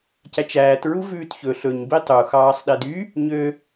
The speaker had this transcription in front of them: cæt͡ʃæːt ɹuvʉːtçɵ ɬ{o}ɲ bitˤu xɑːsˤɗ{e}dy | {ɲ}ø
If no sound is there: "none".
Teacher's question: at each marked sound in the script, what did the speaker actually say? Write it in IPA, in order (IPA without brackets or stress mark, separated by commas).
ɵ, e, ɲ